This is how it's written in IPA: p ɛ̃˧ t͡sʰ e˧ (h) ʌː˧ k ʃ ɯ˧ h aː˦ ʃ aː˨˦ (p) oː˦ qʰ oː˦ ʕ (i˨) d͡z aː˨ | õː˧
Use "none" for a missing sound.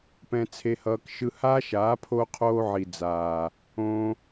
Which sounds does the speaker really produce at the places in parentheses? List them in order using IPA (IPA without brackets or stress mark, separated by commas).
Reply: h, pʰ, i˨